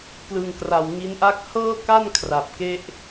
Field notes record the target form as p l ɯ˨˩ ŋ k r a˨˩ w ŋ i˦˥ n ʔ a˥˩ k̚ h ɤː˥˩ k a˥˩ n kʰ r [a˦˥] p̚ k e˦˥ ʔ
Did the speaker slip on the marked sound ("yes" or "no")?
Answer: yes